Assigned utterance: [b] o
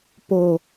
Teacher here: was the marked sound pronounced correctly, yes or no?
no